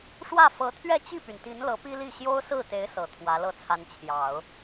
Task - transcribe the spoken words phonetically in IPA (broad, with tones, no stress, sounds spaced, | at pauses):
ʂ w ä˥˩ f ɤ˧˥ t̪ʰ ɥ ɛ˥˧ t͡ɕ i˥˩ p y˩ n t̪ i˧˥ n l ɤ˧˥ p i˥ l i˥˩ ɕ j o˥ ʊ̯ s ɹ̩˥˩ t̪ e˧˥ ɪ̯ s ɤ˨˩ t̪ʰ w ä˧˥ l ɤ˥˩ t͡sʰ a˧˥ n t͡ɕʰ j ɑ˨˩˦ ʊ̯